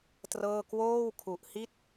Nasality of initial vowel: oral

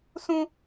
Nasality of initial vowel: nasal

